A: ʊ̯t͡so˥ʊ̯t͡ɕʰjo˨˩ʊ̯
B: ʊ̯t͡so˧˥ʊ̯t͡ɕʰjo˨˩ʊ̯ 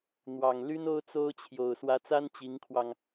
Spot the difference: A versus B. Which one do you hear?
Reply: A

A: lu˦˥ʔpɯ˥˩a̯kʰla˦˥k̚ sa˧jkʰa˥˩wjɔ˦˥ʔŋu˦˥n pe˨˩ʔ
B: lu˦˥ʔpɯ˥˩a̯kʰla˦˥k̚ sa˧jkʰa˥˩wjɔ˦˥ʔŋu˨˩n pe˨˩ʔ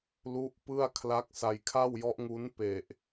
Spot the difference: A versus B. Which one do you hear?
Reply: A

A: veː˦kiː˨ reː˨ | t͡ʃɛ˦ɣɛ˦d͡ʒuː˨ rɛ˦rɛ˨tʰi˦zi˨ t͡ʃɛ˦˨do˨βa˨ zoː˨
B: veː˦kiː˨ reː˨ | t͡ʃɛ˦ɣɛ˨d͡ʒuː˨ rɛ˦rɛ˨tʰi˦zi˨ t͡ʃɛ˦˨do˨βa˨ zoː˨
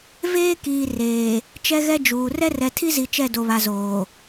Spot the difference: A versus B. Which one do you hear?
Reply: A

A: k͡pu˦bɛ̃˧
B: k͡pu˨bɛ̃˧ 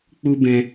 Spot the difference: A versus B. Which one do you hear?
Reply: A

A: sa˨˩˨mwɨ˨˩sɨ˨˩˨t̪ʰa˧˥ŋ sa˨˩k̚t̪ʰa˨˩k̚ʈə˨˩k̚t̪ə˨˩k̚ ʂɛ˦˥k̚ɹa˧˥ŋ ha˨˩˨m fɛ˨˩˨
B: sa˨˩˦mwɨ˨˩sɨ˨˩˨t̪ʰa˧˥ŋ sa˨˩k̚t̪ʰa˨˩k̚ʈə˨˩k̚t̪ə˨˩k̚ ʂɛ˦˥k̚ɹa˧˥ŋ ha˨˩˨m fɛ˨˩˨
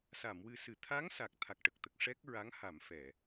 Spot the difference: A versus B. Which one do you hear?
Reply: A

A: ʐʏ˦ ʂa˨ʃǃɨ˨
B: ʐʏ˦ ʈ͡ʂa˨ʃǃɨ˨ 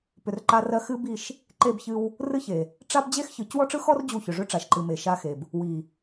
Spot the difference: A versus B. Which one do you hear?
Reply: B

